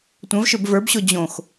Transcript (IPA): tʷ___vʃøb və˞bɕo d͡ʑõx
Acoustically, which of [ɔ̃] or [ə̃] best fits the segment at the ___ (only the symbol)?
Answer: ə̃